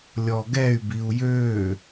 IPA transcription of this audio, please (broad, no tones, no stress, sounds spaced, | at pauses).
lʲ ɔ ɡ ɛ y̯ b i u̯ j ø